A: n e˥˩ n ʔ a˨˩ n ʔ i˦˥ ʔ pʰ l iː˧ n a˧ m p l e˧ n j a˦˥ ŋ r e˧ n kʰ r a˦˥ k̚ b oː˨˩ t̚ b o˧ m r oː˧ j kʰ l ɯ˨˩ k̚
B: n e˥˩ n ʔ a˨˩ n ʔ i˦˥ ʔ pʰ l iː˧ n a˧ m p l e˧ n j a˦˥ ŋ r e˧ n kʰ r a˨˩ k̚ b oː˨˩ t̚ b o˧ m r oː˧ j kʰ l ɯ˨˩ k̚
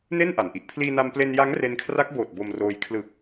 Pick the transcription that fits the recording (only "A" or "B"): A